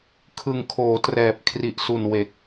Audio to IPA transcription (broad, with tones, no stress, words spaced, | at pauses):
kʰɯ˨˩ŋkʰoː˩˦ trɛː˨˩p̚ kʰri˨˩ʔsu˨˩n we˨˩k̚